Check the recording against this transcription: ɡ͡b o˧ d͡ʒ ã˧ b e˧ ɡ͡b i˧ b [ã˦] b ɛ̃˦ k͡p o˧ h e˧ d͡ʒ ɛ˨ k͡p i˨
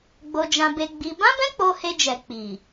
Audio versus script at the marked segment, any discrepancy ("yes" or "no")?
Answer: no